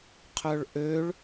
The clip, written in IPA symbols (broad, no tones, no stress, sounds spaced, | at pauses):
qʰ œ ɭ ʔ ø ɭ